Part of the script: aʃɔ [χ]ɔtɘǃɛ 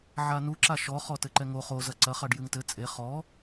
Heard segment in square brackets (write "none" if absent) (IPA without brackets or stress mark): χ